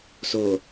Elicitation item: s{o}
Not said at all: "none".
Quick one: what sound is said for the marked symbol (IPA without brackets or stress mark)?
o